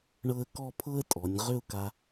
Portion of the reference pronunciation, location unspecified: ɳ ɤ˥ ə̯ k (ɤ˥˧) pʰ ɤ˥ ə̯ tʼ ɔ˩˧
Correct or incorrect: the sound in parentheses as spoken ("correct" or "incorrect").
incorrect